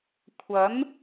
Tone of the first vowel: rising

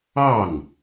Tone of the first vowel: falling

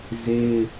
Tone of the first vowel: high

